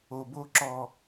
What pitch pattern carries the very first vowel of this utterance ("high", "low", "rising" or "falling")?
low